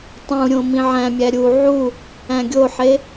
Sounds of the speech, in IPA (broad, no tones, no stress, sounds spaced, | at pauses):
tˤ ũ ɾʲ õ m ĩ ʕ æ̃ mʲ æ ɾʲ u ʕ u | æ̃ ɡʲ o ħ e